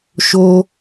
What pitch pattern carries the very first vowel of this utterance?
high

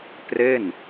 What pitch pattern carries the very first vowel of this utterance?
falling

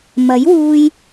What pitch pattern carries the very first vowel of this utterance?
rising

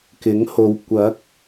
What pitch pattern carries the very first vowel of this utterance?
rising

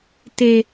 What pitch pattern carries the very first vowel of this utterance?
high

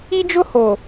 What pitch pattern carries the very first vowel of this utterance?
high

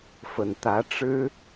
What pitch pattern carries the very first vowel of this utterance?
low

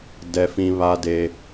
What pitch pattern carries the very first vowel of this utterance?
high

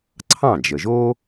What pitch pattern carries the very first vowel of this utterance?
falling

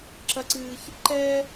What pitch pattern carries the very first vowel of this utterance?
high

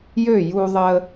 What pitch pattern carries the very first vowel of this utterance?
falling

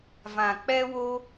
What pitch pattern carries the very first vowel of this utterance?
low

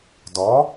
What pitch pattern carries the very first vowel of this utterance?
rising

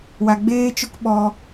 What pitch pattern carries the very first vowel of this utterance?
low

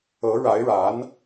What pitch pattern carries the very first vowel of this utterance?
rising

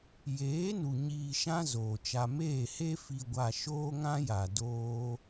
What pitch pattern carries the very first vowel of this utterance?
rising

